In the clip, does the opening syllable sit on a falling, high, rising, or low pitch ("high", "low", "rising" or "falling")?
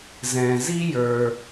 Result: low